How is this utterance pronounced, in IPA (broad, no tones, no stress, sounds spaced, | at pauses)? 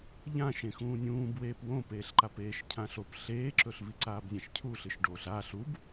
ʎ ã ʃ ẽ x ũː nʲ ũː b w eː p w õ p eː ɬ ǃ a p eː ʃ cʰ ã ɬ o p ɬ eː ǁ ɵ ɬ v i ǀ aː b zʲ ã ʃ cʰ u ɬ ɨ ʃ ɖ oː ɬ aː ɬ u b